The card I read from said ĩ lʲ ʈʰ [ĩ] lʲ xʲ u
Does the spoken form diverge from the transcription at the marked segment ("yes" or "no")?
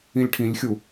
no